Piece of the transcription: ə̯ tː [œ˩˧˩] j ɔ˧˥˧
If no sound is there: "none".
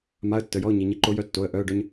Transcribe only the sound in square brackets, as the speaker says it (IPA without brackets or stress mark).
ə˩˧˩